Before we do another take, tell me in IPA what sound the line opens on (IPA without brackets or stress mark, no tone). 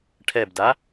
ʈʰ